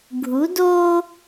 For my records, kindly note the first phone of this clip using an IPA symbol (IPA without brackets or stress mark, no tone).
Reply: ɡʱ